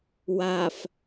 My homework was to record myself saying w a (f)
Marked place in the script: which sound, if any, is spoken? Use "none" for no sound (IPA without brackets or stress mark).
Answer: f